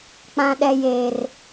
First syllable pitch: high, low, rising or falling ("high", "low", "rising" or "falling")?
low